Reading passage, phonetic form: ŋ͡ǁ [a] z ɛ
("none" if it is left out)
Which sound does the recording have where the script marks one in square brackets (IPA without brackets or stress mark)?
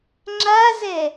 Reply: a